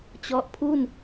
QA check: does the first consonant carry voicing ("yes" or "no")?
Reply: no